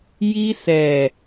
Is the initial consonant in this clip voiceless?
no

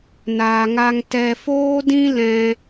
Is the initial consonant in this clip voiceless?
no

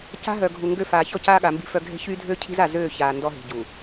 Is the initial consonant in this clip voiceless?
yes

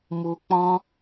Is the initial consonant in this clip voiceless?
no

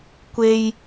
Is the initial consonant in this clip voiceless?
yes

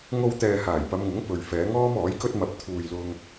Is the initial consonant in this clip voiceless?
no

